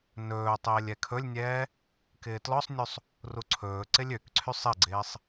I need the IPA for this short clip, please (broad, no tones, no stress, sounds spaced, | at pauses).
n ɵː tˤ ɪː lʲ ɛ kʰ ɵ lʲ nʲ ɛː | k ɪː t l ɔ sˤ nʲ u sˤ | r u ǀʰ ɵː ǀ ɪ lʲ ø k ǀʰ y sˤ ɪ ɡ͡ǀ ɪː sˤ